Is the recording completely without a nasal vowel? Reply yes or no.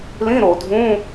no